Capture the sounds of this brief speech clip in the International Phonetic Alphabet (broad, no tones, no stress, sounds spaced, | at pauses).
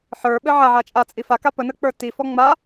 ħ ə˞ ɓ ɘ ʕ a ʕ a t͡ʃʼ a t͡sʼ i f a k a p ə n ə k͡p ə˞ t i f ɔ ŋ͡m a